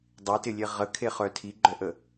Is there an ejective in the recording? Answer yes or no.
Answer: no